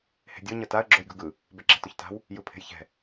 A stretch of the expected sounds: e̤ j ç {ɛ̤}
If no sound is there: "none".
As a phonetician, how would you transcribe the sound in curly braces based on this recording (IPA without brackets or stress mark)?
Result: ɛ̤